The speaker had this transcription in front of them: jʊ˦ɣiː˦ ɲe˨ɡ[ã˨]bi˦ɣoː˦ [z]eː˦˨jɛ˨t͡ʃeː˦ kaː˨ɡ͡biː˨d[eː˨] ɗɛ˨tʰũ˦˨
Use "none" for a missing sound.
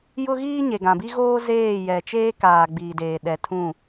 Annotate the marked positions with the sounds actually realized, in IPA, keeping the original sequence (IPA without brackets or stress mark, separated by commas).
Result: ã˨, z, eː˨